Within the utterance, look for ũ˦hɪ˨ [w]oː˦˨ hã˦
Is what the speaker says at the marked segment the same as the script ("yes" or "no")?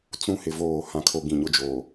no